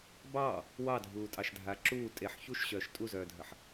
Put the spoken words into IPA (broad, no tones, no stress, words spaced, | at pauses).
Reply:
bɑː | wɑdʱuːtʼɑʃdʱa ǁuː tʼeħ çuʃɕœːʃ tʼuzœːdʱəħ